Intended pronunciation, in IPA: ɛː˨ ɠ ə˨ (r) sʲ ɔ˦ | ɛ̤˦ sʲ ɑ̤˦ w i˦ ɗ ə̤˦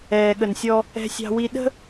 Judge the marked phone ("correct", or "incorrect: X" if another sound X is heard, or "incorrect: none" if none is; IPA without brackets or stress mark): incorrect: n